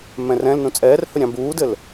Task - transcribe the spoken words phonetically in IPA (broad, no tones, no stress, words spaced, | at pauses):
mɛ̃rɛ̃lnũ t͡sʼɛːrhɵ ɾʲɑ̃buːdɘl